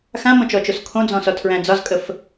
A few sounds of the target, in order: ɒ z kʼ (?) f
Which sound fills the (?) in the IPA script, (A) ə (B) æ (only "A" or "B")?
A